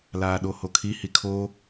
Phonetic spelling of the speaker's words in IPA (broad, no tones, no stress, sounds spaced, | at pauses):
l aː ɗ o h o kʰ i h i kʰ o